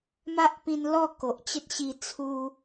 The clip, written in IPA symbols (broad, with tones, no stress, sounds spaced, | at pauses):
m a˦ ʔ p ĩ˧ n l ɔ˥˧ k o˨ ʔ t͡ɕ ə˦ t̚ ɕ i˧ t͡sʰ u˦